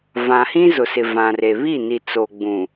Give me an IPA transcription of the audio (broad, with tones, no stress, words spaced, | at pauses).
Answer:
vã˨hĩ˦ zʊ˨ sɪ˨vã˨re˨ βi˦˨ni˨ t͡so˨ɡ͡bũ˨